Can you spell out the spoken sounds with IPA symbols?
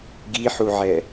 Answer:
ɡ i ħ u ʕ ɛ

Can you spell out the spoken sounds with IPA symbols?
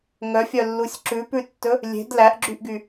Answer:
ŋ œ fʲ œ lː u sʲ ǁ ʉ p ʉ tː ɵ | lʲ e̤ d l æ ʔ ɡ͡ǁ y ʔ ɡ y

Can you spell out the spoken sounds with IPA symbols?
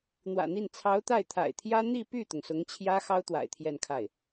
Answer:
n̪ w ä̰˨˩ n̪ i˥˩ n t͡sʰ ɑ˧˥ ʊ̯ t̪ a˥˩ ɪ̯ t̪ʰ a̰˨˩ ɪ̯ t̪ʰ j ä˥ n̪ i˥˧ p y˥˩ t̪ ʊ˩ ŋ s ʊ˧˥ ŋ t͡ɕʰ j ä˥ x ɑ˥ ʊ̯ t̪ w a̰˨˩ ɪ̯ t̪ʰ j ɛ˥˧ n kʰ a˥˩ ɪ̯

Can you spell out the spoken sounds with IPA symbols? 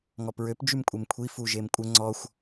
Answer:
ŋ ɔ p ɹ ø p d͡ʒ y m kʷʼ e m kʷʰ i f u ʒ e m kʷʼ ə ŋ͡ǀ ɔ xʷ

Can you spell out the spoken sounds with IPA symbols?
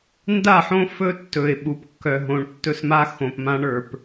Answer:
n d a˦˨ ħ õ˦ f ɵ˦ tː ɵ˨ ɪ̯ ɓ u˨ p kː œ˨ ɦ õ˨ ɳ tː ɵ˦ s m a˦ x õ˨ p m ã˦ ɳ ə˞˨ p

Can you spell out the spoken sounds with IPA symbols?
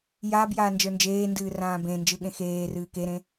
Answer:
j aː b j aː n d͡ʒ ə˞ n d͡ʒ eː n d ɨː r ãː b ẽ n d͡ʒ ɯ ɠ ẽ x eː r ɨː k e ɾ ẽ

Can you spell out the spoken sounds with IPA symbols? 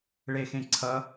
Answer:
ɭ e x ẽ ǀʰ ʌ

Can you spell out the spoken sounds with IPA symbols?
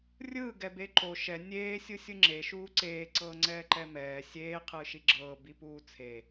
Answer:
rʲ ɯː ɡ ɛ b e ǃ o ʃ ɛ nʲ eː sʲ ɯ sʲ ɯ ŋ͡ǁ e ʃ uː ǀ eː ǀ ɤː ŋ͡ǀ ɛː ǃ ɛ m ɛː sʲ eː qʰ ɯː ʃ i ɡ͡ǁ ɤː b i p uː t͡sʰ e

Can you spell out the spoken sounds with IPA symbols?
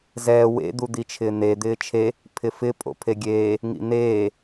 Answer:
z ɛː w ḛ d̪ u d̪ i t͡ʃʰ ɪː n̪ e d̪ ɪː t͡ʃʰ e | pʰ ɪ f ɪ pʼ o̰ pʰ e ɡʲ eː | ŋ ḭ n̪ eː

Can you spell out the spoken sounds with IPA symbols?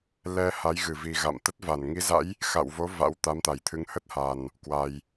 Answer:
l ɛ˧ h a˨˦ j ɣ ɨ˧˩ v i˨˩ ɣ a̰˧˨ m t̪ ə˦˥ t̚ v a˧˩ n ŋ i˨˦ z a̰˧˥ j | x a̰˧˨ w v o˨˦ v a̰˧˥ w t̪ a˨˦ m t̪ a˧˩ j t̪ʰ ɨ˨˦ ŋ h ə˦˥ t̚ h a˨˩ n | k w a˨˩ j

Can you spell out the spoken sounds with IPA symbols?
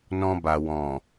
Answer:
n ɔ̃˧ b a˨ w ɔ̃˨

